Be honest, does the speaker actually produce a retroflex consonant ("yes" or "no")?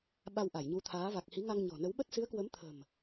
no